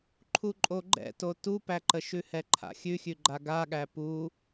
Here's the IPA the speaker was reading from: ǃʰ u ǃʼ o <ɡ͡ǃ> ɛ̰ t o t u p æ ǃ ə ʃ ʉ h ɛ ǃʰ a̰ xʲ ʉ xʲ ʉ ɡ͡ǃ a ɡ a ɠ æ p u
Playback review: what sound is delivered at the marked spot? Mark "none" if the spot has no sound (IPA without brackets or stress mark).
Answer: ɡ͡ǃ